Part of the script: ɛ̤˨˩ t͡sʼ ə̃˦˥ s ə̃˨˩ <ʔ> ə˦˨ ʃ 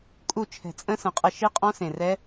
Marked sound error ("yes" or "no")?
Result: yes